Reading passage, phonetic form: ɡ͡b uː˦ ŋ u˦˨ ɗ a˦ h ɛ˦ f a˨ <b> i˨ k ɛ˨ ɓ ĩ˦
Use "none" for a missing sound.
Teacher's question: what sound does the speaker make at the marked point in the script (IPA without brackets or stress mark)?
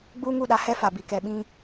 b